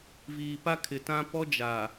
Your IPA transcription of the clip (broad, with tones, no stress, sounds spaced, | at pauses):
v iː˨ p a˦ kʰ ɪ˨ t ã˦ p ɔ˦ d͡ʒ a˨